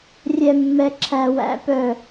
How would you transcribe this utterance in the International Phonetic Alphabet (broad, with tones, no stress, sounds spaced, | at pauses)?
rʲ ɛ˦ mː ɛ˦ ǁʰ æ˦ w æ̰˦ p œ˦˨